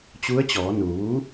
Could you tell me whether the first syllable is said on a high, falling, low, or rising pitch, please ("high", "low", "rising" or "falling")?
rising